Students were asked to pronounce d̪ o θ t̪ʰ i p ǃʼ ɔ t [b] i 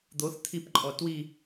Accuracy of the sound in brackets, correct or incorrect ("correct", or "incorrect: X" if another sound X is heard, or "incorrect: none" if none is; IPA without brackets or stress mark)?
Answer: incorrect: w